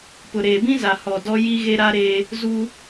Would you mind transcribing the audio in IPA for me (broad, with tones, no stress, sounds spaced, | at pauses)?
p ʊ˨ ɾ eː˨ b ĩ˦ z a˨ h ɔ˨ d ɔ˦ j i˦ ɣ e˦ ɾ aː˦ ɾ eː˦ | z u˦